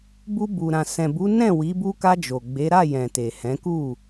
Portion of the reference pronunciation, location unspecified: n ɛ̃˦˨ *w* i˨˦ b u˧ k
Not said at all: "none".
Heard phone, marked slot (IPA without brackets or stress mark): w